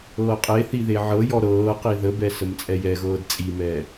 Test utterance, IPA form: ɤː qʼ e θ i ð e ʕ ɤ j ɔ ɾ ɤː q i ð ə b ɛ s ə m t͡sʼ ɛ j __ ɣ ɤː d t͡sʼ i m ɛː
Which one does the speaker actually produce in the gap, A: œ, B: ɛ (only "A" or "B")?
B